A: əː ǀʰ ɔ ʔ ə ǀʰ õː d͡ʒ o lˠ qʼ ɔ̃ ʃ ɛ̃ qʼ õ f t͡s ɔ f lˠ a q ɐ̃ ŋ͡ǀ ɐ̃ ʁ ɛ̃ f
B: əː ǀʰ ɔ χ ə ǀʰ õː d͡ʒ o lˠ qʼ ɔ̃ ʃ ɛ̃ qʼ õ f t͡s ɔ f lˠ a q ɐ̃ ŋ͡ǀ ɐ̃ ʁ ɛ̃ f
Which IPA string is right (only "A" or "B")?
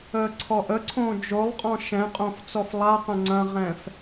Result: A